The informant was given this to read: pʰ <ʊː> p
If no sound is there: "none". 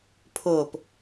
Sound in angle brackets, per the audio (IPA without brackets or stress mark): ʊː